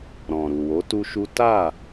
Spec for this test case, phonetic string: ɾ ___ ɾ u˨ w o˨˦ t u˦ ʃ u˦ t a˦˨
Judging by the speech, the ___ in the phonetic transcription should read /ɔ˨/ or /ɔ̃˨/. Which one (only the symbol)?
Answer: ɔ̃˨